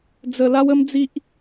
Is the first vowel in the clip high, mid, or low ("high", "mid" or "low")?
mid